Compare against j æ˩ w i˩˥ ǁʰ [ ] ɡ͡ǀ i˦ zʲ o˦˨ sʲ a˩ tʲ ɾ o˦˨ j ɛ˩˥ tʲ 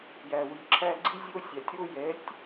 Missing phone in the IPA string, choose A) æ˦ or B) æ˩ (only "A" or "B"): A